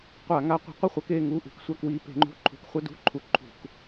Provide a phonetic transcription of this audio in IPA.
qʷa˧˩˧ŋa˨˦ qʷə̤˨˦qʷʌ˥˨χʷʌ˨˦k e˥˨ŋu˧˥˧ʔṳ˨˦k sʷa˧˥˧kwi˨˦ pe̤˨˦ŋ͡ǃṳ˧˥˧ǃʰṳ˨˦k χʷʌ˧˥˧dṳ˧˥˧ ǃʰu˨˦ ǃʰṳ˧˩˧k

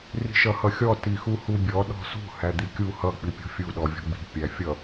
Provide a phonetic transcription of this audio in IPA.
ri̤ʃʌhʌxʲɔ tixuhubʲɔ ɗɔ̤sṳ hæd̪ikʲu hʌ k͡pipʲɔ̤fʲu ɗɔvʲɔ̤ɡ͡bi̤ pʲæfʲʌ

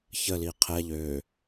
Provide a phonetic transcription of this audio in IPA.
çəli qʰɛ ʎø

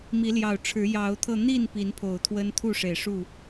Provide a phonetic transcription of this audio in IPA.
mi˨˦ljɑ˨˩ʊ̯ʈ͡ʂʰɻ̩˨˦ jɑ˨˦ʊ̯t̪ʰɤ˧n̪i˥˨n pi˨˦npʰo˨˩ʊ̯t̪ʰwə˦nt̪ʰu˥˨ ʂe˨˩ɪ̯ʂu˥˨

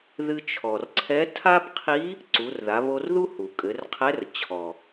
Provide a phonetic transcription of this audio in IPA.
ðɨ˧t͡ʃʰɔ˩rǀʰɛ˧˥ tʰa˥bqʰi˧˥ | ǀu˩˧rða˩˧ βo˧rðu˥ hu˩kʼɘ˩˧rqʰɛ˧˥r t͡ɕʰɔ˩

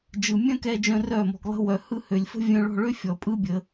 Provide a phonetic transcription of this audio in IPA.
d͡ʒɯ˨mʲœ̃˦kɛ˧d͡ʒœ̃˧ rœ˦˨mɔ̤˧ɡlˠə̤˦ wœ˧hɯ˦ hø˨lʲfə̤˦ vʲœ̃˧ɭɔ̤˦˨ɭø˦ fʲɔ˨pʼɯ˦ bʲə˧

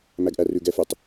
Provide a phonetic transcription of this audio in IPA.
mæɡʔærʉɡɛ fʉtˤ

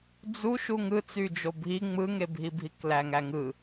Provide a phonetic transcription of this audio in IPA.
d͡zu ʃuŋɯt͡syd͡ʒo bʱi ŋ͡mɯŋebʱibʱik læŋæŋɯ

